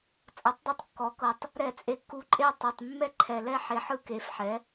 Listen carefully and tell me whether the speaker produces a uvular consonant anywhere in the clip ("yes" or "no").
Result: no